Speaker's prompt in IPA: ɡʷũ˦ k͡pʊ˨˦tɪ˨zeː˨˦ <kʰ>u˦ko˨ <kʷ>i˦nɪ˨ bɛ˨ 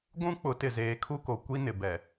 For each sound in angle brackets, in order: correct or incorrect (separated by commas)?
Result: correct, correct